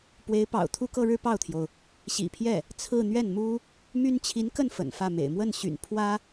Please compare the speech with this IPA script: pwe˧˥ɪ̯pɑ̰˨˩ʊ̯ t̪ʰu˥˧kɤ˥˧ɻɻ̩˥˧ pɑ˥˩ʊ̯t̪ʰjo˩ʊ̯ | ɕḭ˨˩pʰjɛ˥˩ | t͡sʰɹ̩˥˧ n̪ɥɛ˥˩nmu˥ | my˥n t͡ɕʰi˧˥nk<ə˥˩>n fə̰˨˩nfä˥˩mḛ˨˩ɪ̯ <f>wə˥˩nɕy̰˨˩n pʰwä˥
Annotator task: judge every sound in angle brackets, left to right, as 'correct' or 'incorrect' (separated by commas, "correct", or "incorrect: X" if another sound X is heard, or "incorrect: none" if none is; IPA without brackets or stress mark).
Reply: correct, incorrect: m